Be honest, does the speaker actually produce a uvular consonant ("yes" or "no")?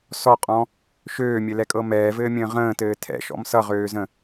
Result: yes